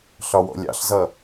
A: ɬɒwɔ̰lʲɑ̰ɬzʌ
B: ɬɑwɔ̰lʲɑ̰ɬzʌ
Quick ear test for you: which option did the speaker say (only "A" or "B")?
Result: A